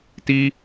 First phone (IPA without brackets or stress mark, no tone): t